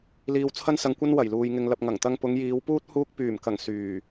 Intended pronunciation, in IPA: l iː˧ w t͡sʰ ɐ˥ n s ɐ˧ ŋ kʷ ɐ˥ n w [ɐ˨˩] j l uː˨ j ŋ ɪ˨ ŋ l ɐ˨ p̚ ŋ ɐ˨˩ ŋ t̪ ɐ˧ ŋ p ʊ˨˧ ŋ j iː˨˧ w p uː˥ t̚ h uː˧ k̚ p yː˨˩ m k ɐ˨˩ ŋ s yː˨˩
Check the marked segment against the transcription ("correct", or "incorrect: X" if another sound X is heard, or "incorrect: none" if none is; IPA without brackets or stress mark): correct